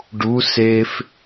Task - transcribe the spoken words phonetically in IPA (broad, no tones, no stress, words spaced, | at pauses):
ɖu sef